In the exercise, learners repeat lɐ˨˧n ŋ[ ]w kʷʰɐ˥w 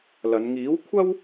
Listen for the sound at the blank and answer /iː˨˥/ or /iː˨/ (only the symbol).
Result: iː˨˥